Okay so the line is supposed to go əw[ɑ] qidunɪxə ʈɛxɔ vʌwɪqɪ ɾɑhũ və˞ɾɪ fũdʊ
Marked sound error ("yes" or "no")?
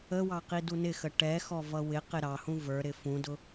no